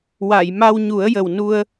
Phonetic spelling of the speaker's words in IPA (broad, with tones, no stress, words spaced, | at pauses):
wa˨˩˨j ma˧wɲu˨˩˦ə̯jə˨˩wnu˧ə̯